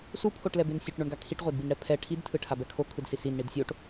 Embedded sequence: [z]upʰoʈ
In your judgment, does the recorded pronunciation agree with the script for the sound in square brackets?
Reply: no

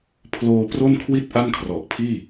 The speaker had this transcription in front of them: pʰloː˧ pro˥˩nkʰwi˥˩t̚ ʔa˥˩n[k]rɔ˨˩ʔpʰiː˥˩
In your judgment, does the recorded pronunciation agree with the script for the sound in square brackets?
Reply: no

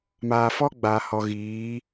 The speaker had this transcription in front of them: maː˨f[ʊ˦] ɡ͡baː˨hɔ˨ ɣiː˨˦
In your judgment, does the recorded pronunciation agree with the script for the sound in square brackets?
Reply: no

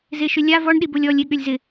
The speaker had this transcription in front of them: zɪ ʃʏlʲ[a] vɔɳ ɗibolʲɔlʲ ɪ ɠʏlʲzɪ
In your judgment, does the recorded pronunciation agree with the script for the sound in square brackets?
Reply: yes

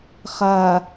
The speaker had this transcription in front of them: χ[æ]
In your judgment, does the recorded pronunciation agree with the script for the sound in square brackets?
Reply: no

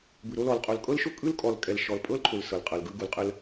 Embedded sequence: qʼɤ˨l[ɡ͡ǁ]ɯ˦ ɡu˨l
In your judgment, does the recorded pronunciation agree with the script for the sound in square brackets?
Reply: no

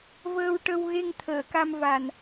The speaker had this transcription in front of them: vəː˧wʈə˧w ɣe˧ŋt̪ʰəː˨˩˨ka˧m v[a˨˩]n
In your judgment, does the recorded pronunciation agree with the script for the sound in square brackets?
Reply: yes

